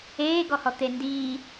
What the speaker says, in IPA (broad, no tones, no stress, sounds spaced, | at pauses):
eː ɡ ɔ h ɔ t̪ e n d iː